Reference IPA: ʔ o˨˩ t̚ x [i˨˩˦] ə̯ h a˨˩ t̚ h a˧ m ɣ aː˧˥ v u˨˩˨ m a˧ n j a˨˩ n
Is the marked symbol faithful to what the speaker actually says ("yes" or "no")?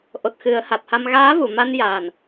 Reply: no